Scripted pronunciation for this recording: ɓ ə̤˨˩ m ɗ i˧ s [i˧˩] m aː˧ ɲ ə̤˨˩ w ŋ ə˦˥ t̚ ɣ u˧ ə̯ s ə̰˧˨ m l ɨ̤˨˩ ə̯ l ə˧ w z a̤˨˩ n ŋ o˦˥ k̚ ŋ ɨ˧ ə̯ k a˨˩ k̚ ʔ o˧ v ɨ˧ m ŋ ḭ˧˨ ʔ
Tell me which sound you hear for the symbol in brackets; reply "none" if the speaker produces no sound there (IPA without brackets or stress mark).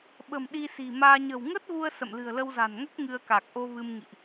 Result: i̤˨˩